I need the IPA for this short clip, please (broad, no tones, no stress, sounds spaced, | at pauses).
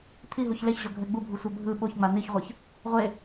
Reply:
t̪ʰ i ɦ u ç l e ç ʑ o ɡʱ ɛ ɡ͡b u bʱ u sʷ ɛ bʱ ɯ ɓ o ç ŋ͡m a n̪ i ç ʁʷ ɯ ç | ʁʷ e